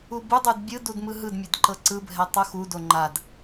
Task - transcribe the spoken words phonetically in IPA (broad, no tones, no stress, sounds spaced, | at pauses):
u b u dˤ u d bʲ ɯ d u d m ɯ ɦ ɯ d mʲ e d ǃ ɤ ǀ ɯ bʱ ɛ tˤ u x u d o ŋ͡ǃ a d